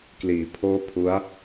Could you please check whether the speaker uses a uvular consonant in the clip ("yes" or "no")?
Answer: no